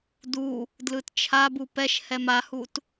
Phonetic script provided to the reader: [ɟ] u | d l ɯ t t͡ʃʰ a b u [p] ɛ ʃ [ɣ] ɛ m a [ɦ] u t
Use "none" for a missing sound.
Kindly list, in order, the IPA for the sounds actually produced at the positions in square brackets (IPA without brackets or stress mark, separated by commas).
d, p, h, h